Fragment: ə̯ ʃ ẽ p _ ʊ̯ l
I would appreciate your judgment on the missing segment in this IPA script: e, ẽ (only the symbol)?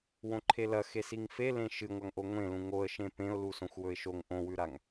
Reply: ẽ